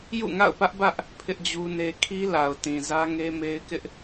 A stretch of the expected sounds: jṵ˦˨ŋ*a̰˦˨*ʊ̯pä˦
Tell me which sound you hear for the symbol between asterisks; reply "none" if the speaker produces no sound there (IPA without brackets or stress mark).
a̰˦˨